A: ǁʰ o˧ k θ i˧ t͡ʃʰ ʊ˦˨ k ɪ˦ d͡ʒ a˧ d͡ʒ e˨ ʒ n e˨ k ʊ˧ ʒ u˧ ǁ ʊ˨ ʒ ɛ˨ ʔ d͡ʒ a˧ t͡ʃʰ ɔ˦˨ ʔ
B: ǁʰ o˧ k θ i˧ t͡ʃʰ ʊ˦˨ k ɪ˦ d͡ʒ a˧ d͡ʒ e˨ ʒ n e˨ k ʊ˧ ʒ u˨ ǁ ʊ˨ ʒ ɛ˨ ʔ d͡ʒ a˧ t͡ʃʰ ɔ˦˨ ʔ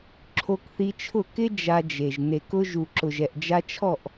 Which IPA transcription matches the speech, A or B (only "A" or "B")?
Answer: B